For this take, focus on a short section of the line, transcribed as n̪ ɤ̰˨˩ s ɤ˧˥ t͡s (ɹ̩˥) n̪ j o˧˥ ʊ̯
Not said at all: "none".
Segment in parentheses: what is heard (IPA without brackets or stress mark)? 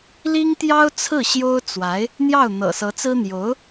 ɹ̩˥